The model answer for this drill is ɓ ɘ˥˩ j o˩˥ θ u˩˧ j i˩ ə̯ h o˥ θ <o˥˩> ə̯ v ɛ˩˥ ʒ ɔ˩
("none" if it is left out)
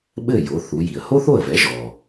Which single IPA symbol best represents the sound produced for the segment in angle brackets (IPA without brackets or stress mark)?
o˥˩